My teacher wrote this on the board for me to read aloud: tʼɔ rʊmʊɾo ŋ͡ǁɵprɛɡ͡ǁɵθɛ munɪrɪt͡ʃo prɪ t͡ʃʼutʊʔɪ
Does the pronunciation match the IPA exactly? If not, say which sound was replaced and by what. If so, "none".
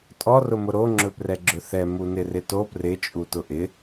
t͡ʃ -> t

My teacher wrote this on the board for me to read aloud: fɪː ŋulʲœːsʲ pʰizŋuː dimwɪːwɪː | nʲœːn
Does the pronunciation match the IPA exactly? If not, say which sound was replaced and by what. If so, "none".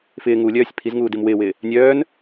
none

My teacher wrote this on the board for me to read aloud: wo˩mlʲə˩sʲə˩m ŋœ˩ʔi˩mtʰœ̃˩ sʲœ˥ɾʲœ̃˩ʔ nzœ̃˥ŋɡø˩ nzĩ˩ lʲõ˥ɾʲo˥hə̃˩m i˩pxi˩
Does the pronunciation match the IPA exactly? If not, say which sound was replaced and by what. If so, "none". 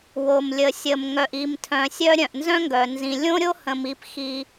ø˩ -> œ˩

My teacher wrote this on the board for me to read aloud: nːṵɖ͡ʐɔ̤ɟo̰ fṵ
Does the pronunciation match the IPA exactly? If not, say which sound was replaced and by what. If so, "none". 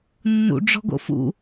ɟ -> ɡ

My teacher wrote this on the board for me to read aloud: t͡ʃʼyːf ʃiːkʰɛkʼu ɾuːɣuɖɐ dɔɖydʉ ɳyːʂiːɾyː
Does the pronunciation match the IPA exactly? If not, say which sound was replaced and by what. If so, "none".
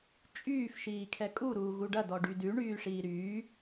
none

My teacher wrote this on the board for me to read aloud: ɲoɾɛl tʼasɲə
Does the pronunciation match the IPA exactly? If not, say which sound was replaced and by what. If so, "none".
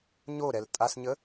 none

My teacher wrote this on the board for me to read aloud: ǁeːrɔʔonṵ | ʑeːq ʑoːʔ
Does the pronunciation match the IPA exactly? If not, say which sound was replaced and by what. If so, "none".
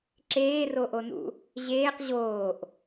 ɔ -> o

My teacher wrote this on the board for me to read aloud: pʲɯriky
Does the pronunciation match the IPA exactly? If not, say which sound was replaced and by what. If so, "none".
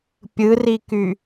none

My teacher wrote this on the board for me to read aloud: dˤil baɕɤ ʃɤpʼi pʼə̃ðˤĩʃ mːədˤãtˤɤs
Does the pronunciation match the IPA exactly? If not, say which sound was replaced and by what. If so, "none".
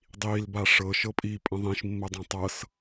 ɕ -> ʂ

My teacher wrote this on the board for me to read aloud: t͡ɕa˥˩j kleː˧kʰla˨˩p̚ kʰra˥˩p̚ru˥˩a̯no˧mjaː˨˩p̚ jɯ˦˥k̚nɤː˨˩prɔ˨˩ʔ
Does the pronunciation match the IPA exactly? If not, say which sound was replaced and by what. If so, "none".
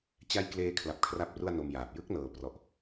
none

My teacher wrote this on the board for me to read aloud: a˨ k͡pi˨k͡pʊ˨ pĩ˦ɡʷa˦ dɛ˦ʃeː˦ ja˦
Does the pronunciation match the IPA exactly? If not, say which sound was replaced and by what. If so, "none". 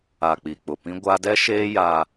none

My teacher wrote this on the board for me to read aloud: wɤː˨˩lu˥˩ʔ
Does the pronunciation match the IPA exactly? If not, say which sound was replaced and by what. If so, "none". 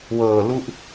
none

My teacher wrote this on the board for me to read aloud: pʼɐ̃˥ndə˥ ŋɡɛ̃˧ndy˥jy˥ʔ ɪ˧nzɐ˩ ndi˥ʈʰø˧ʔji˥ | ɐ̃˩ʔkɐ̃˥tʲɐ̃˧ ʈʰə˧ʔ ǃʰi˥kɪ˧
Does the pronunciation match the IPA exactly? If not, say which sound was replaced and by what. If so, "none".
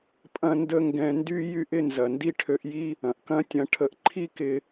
none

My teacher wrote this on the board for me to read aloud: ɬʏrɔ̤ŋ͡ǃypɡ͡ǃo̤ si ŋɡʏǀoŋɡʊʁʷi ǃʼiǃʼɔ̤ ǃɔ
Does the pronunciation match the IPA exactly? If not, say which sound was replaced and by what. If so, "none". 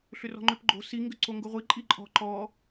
y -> ʏ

